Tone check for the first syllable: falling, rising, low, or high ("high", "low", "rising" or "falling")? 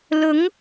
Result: rising